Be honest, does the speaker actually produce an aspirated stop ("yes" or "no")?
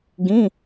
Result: no